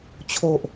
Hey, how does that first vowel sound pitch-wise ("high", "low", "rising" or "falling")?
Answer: low